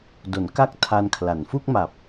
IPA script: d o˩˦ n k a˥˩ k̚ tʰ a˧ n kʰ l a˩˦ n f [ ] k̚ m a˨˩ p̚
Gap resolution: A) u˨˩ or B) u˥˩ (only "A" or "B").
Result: B